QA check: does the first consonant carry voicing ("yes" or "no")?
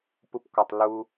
no